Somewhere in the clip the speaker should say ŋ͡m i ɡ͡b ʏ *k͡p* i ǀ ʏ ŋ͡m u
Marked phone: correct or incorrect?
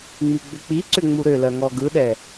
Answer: correct